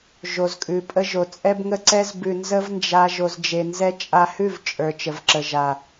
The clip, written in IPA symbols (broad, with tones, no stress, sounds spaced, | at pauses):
ʒ o˨ z kʼ ʉ˨ pʼ ə˧ ʒ o˨ t͡sʼ ɛ˦ b ŋ ə˦ ǀ ɛ˦ z b ʉ˧ n z ə˦ v n d͡ʒ a˧ ʒ o˧ z d͡ʒ e˧ n z ɛ˦ t͡ʃʼ a˧ h ʉ˦˨ v t͡ʃʼ ə˞˨ t͡ʃ ə˨ v ǁ ə˨ ʒ a˨